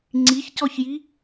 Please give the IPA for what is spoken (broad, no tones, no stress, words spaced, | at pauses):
ŋ͡ǀiçcɔçji